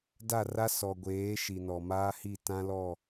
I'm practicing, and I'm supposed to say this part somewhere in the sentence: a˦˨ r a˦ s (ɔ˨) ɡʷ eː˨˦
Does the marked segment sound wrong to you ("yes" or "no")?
no